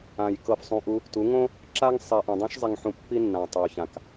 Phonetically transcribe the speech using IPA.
ã˨ j k ɤ˧ f sˤ ũ˧ ʔ u˦ | t u˨˦ ŋ õ˦ | ǁ a˦ ŋ sˤ i˨ ʔ ũ˨ dˤ õ˦ ʃ zˤ i˧ ŋ ħ ũ˧ pː i˦ nː ã˨ tˤ o˨ ç ã˨ k

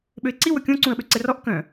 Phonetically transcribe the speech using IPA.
ɓ ø ɪ̯ ǀ i w ɵ kʲ õ ǀ ũ ə̯ ɓ ø ǀ ɛ r ɔ ʔ k œ̃

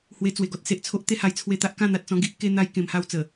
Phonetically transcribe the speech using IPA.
h w e˧ t͡s w e˨˩ ɡ ɔ˦ t̚ s e˨ ʔ t͡sʰ o˦ ʔ t̪ e˥˧ h a˧ j t͡sʰ w e˧ t̪ a˦ ʔ k ã˥˧ n̪ a˨ t̚ t͡s ɔ̃˧ ɡ i˦ ʔ k e˧ n̪ a˧ j k ẽ˧ m h a˦ w t͡s ə˨˩

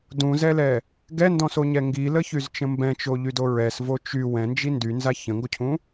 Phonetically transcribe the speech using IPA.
d ũ z ɛ l ɛ | ɡ ɛ n d ɔ̃ s o ɲ ɛ ŋ ɡ i l ə ç y z t͡ʃ ə̃ m b ɛ̃ t͡ʃ o ʎ y d o ɹ ɛ s v o t͡ʃ y w ɛ̃ n d͡ʒ i n d y n z a ç ə̃ ŋ ɡ o cʰ ũ

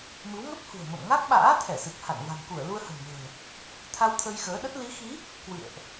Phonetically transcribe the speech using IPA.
m ɨ˨˦ w ŋ ə˦˥ p̚ h ṳ˨˩ ə̯ m ə̰˧˨ m ŋ a˦˥ k̚ ɓ a̰ː˧˥ t̪ʰ ɛ˧˩ s ɨ˨˩ k̚ h a̰˧˨ n v a̤˨˩ n k u˧˩ ə̯ l u˧ ə̯ h ə̤˨˩ n m ə̤ː˨˩ | t̪ʰ a˧ w t̪ʰ ə˧ j x əː˨˦ ɗ ə˦˥ t̚ l i˨˦ x i˨˦ | k w ɨ̰˧˨ ə̯ ʔ

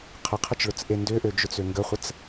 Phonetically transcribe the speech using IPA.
qʰ ə qʰ ə t͡ʃ ɭ ʊ t͡s ʔ e n d ʏ ʔ ø d͡ʒ ʊ t͡s ø ŋ ɡ ə χʷ ə t͡s

